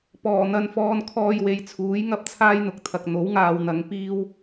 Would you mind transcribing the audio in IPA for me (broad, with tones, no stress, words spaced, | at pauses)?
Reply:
pɔː˨˩n̪ɐ˧nfɔː˧n kʰɔː˧jwe˨˧jt͡sʰuː˨˥j ŋɐ˥p̚t͡sʰaː˥jn̪ʊ˨k̚t̪ʰɐ˨k̚ n̪o˨˥w ŋaː˧wn̪ɐ˨˧ŋ piː˥w